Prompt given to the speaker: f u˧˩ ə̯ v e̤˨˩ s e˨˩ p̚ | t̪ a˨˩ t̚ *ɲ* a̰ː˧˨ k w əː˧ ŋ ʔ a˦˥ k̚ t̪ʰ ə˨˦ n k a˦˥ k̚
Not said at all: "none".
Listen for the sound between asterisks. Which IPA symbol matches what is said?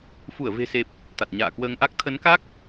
ɲ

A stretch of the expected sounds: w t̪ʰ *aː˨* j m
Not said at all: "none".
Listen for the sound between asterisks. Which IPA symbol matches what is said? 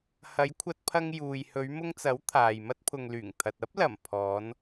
aː˨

